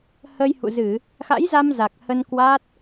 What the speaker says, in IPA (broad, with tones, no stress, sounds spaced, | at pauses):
h əː˧ j h ṵ˧˨ z ɨ˧˩˨ | x a̰˧˥ j z a˧ m z a˨˩ k̚ h ə˧ n k w a˦˥ t̚